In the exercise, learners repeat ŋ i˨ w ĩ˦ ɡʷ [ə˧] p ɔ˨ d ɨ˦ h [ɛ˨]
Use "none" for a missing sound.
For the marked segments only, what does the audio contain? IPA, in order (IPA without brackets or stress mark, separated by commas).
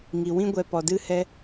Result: ɛ˧, ɛ˦